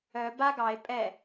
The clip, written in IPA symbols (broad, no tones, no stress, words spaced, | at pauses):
œ ba ɡɑe̯ pʼɛ